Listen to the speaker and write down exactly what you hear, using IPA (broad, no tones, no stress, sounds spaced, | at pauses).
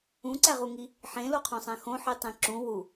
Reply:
ũ ǀ æ ʁ u ŋ i | ħ ẽ l o qʰ õ sˤ æ̃ x õ ħ i tˤ ẽ ǁ ũ w u